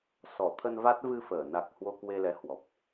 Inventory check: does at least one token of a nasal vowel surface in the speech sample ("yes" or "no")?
no